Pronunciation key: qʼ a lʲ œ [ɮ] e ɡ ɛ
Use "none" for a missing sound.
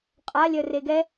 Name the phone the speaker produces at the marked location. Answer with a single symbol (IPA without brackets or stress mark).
r